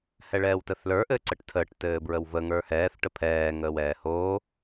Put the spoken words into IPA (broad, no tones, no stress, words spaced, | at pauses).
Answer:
hɛɭɛːwtəθlə˞ ʔɘːǀəʈtʰəːʈ tɘːbɹəwvə ŋə˞hɛːθ ʈəpʰɛː ŋəːwɛːhoː